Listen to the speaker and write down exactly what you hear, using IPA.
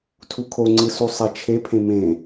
tʰ u kʰ o ŋ͡ǀ ɯ s u sˤ e t͡ʃʰ e pʰ ẽ m ẽ

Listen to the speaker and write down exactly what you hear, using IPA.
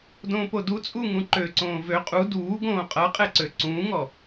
d õː p o d u t͡sʼ u ŋ ũ ǃ ø ǀ õː v ø qʼ u d uː ɡ õː qʼ ʌ qʼ ɛ ǀ ø ǀ ũː ŋ ɔ

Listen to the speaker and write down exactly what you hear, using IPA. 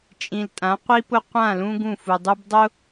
t͡ʃʼ ĩ˨ l tʼ ã˨˦ qʷ i˦ p ʊ˦ qʷ ã˦˨ l ũ˦ ɡ ũ˦˨ f u˨ dˤ u˦ b dˤ ʊ˦

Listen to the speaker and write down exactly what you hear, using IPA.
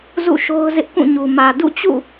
z ṵ˦˨ ʃ o˦ ʊ̯ z ɪ˦ ʔ k ũ˦˨ ɲ u˨ m ä˨ d ṵ˦˨ t͡ɕ ṵ˦˨

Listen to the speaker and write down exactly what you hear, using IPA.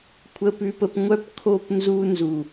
kʷʰ ə˨ p ʉ˨ p ə˨ p ŋʷ œ˦˨ p kʰ o˦˨ p n z u˦ n z u˨

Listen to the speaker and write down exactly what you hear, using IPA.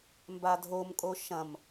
m b a dʱ o m kʼ o ʃ ɐ̃ m

